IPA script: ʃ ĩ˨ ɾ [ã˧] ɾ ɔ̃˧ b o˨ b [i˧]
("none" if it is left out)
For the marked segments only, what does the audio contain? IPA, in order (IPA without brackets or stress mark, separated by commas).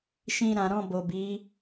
ã˨, i˨˦